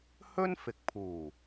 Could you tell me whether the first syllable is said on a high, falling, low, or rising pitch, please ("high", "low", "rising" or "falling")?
high